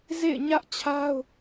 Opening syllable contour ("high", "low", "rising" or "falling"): falling